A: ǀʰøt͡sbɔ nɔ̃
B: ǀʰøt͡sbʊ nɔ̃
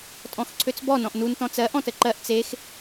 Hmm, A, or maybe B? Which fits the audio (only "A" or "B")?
A